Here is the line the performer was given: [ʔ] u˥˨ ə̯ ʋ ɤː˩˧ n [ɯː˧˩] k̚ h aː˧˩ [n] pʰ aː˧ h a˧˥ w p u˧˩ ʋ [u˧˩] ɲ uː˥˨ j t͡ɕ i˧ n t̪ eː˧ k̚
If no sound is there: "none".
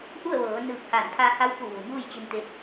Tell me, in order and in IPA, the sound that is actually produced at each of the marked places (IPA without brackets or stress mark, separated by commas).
ʔ, ɯː˧˩, n, u˩